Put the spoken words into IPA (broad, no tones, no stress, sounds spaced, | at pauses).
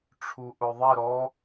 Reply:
ʈ͡ʂʰ u ʔ ʊ ðˤ ɛ ɾ ɔ